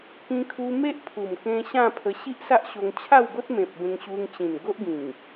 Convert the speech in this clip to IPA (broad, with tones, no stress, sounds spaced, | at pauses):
k ĩ˧ kʰ u˧ m e˦ ʔ pʰ u˨˩ m k ẽ˧ ɕ ã˥˧ pʰ ə˧ ɕ i˦ ʔ s a˦ ʔ ɕ o˧ ŋ t͡ɕʰ a˥˧ w ɡ o˦ t̚ m ẽ˨ p̚ b ẽ˧ ŋ ɕ u˧ ŋ t͡ɕ ĩ˨˩ n ɡ o˦ ʔ ɡ ĩ˨˩ ŋ